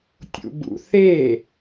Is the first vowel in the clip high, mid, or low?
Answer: high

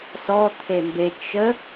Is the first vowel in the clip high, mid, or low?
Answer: mid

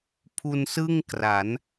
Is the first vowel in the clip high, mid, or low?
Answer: high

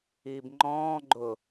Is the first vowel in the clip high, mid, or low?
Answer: high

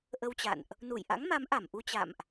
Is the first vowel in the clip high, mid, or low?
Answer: mid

